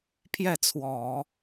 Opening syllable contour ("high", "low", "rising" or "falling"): falling